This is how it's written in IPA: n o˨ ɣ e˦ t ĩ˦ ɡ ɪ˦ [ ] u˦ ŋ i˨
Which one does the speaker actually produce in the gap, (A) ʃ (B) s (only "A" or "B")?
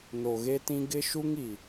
A